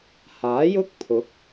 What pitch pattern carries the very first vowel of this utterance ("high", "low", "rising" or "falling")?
rising